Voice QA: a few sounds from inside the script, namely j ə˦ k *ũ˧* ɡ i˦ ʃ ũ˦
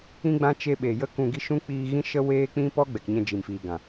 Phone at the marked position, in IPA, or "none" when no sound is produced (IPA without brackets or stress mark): ũ˧